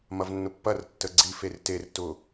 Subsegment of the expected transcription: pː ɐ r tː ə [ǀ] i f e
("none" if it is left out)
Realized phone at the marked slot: ɡ͡ǀ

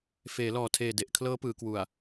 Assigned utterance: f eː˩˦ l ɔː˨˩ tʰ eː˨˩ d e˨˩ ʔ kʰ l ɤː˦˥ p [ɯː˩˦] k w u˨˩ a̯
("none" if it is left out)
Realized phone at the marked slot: ɯː˩˦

